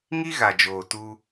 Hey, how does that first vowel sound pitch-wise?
high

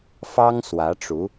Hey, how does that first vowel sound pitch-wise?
high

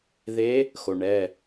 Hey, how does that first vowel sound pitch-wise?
rising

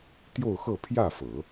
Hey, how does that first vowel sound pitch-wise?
falling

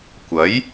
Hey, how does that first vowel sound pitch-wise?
rising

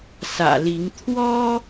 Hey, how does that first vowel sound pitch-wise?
low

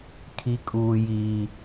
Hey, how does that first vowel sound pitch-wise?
high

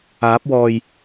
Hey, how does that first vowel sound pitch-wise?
rising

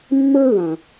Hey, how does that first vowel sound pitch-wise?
high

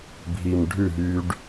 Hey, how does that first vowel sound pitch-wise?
low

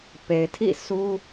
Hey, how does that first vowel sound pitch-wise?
low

